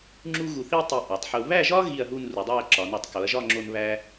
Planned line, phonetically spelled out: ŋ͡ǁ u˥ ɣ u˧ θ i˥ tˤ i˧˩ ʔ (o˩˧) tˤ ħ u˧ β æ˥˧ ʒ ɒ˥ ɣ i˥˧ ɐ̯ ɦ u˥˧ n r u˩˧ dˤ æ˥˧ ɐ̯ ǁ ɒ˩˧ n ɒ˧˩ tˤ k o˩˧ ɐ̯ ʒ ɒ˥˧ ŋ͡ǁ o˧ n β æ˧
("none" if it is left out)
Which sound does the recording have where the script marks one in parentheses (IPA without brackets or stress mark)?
o˩˧